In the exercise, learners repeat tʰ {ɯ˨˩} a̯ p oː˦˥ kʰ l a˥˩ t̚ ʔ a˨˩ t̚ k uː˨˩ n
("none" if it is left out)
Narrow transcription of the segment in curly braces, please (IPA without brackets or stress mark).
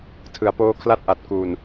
ɯ˨˩